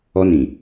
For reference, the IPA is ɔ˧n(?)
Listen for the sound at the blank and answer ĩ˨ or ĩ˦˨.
ĩ˨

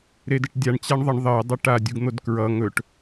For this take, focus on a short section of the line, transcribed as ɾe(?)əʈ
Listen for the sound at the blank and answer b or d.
d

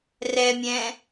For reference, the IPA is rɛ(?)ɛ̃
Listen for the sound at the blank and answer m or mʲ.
mʲ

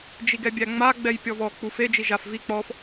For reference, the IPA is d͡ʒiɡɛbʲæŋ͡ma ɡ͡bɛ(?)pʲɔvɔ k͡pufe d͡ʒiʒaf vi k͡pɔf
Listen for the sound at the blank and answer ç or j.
j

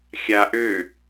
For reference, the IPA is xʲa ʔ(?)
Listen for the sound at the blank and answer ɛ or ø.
ø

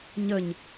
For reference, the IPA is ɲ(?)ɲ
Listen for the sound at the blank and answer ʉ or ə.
ə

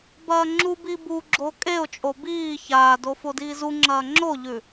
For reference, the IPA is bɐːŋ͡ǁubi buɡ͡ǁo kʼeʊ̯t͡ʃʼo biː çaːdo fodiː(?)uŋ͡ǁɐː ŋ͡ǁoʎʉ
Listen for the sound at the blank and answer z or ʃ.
z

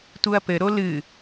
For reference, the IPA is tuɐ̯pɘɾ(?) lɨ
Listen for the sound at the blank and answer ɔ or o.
o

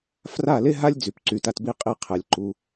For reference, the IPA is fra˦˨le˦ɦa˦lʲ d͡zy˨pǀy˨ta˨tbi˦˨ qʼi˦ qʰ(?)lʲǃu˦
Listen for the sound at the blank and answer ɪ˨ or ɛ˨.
ɛ˨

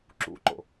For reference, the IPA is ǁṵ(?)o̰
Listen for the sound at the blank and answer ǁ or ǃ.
ǃ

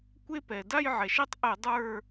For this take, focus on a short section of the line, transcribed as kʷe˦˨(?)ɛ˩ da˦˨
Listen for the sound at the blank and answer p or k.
p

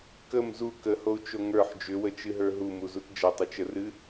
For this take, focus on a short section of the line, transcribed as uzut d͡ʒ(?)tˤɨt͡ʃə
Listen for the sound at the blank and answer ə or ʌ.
ʌ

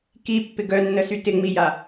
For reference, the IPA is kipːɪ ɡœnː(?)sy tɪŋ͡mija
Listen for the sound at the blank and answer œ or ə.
ə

